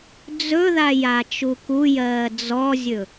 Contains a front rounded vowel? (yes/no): no